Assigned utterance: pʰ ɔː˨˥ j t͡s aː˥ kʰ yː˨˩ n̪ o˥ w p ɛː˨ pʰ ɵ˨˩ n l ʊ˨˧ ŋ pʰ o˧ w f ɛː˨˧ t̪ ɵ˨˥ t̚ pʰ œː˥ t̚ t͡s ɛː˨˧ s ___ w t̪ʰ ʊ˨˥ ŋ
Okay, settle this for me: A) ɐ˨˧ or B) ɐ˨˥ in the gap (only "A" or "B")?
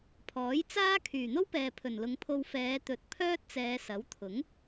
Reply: B